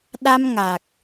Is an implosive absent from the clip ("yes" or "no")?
no